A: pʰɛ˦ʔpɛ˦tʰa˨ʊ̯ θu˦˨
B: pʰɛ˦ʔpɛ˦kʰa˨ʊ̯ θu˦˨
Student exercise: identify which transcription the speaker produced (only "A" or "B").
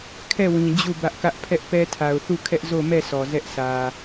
A